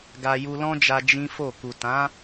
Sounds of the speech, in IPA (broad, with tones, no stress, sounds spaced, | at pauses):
ɡ a˧ j u˧ l ɔ̃˦ d͡ʒ a˧ d͡ʒ ĩ˦ f o˦˨ k u˨ t ã˨˦